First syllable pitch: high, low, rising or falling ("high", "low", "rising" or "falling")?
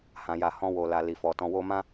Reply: low